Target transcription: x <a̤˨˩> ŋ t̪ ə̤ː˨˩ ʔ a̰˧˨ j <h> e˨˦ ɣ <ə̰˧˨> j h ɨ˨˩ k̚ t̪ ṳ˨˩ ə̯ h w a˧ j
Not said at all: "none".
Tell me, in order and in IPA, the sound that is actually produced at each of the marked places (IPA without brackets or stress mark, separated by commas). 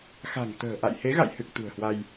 a̤˨˩, h, a̰˧˨